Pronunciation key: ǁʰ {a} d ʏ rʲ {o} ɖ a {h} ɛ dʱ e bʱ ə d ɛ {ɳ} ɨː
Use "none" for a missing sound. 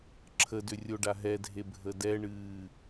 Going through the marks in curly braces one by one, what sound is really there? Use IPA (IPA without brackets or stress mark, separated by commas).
ə, o, ɦ, ɳ